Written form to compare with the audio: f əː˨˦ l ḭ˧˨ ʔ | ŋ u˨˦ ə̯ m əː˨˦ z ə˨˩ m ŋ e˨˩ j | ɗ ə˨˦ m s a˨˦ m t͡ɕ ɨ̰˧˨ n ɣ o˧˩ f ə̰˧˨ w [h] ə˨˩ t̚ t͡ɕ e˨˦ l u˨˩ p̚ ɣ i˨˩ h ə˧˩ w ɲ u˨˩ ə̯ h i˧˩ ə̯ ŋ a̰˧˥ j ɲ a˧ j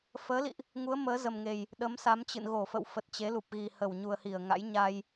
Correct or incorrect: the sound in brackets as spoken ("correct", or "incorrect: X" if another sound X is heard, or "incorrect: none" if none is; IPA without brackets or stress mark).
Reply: incorrect: f